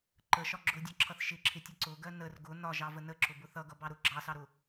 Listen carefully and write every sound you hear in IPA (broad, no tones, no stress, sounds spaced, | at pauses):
ǃ ə ʃ ɒ ɡ͡ǁ ʊ dʲ ɒ ǁʰ ʌ θ ʃ ɪ ǁʰ ɪ tʲ ʌ ǀ ʊ ɡ ɜ n ə r ɡ ʊ n ɒ ʒ ɑ v ə n ə ǁ ʊ b ʊ θ ʌ ɡ ʌ b ɑ ɾ ʊ ɡ͡ǁ ɑ s ɑ ɾ ʊ